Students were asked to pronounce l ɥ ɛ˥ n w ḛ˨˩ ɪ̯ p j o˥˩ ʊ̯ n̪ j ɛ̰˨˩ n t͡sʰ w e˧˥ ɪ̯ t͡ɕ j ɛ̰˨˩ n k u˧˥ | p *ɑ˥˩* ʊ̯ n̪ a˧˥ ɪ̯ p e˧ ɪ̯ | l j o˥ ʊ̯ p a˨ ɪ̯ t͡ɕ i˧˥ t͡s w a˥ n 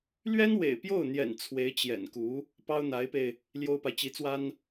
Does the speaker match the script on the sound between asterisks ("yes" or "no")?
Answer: no